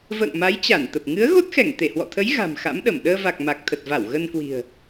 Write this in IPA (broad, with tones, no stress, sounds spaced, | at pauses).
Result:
v ə̰ː˧˨ ŋ m a˨˦ j t͡ɕ a˧˩ n t̪ ə˨˩ p̚ ŋ ɨ˨˦ ə̯ ɣ o˦˥ t̚ x ɛ˧˩ ŋ t̪ e˧˩ h w ɔ̰˧˨ t̪ʰ ə˨˦ j ɣ a̤˨˩ m x a̰˧˥ m ɗ ə˧˩ m ɗ əː˧ v a˨˩ k̚ m a˨˩ k̚ t̪ʰ ə˨˩ t̚ v a˧˩ w ɣ ə˧ n k w i̤˨˩ ə̯